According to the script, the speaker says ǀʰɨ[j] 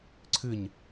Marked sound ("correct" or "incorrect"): incorrect